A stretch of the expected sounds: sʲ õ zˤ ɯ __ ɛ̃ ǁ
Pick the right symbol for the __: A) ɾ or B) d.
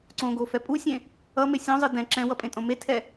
B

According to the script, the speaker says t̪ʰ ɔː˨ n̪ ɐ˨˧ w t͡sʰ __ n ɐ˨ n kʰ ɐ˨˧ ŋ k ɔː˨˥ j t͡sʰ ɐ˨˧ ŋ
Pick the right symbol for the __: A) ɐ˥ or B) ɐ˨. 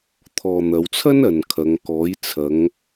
A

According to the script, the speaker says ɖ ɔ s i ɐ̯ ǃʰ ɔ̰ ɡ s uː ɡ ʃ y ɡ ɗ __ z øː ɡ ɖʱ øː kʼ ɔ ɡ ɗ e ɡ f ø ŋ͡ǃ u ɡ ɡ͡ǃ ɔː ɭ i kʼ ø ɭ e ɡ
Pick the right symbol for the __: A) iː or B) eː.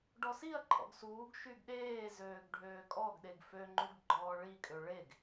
B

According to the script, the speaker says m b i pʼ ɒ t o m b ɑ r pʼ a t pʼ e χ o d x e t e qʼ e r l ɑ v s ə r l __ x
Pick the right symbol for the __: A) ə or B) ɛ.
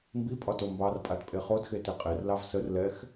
B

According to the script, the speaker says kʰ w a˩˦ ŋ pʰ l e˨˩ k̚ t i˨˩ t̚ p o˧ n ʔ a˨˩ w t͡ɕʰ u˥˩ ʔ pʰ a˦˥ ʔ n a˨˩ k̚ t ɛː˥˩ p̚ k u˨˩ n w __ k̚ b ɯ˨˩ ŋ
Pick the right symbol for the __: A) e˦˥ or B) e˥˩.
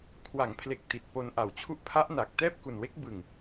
A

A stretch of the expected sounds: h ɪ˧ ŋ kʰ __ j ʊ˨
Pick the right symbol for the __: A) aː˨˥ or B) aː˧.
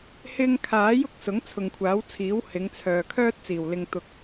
A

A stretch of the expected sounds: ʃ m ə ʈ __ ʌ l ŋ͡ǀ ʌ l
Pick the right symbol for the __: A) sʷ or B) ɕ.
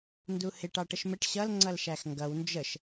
B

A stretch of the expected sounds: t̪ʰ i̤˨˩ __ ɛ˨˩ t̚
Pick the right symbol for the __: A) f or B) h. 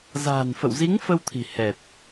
B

